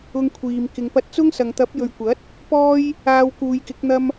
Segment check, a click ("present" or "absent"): absent